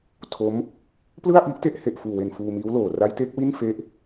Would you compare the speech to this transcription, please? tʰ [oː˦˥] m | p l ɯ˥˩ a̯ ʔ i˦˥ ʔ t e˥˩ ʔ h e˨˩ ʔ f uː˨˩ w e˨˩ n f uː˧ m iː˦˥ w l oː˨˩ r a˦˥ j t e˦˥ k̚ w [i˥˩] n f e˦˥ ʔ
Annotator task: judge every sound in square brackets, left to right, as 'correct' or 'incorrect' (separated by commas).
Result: incorrect, correct